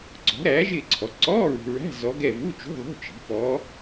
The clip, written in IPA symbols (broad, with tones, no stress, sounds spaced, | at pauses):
ǀ ɔ̤˩˥ ɾ æː˩˥ ʒ ɪː˦˨ ǀʰ ɔ˩˥ ǀ ɔː˧˥˧ ɹ ṳ˨ ɹ æ̤˧˥˧ z ɔ˧˥ ɡ ɛ˦˨ v u˧˥˧ t͡ʃ ṳ˧˥˧ ðˤ ṳ˧˥˧ t͡ʃ i̤˩˥ p ɔː˧˥